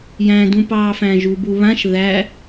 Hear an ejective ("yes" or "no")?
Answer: no